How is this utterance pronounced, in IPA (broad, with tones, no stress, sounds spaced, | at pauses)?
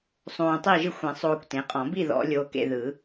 sˤ õː˧ tˤ i˥˨ ʒ ɯ˥˨ xʷ ẽ˨˩˦ sˤ oː˧ kʷ t ẽ˩˥ qʼ ɔ̃˨˩˦ b i˥˨ ð ɔ̰˨˩˦ lʲ oː˧ k ḛ˧ ð ɯ˨˩˦